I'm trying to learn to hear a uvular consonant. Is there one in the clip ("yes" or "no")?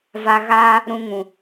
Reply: no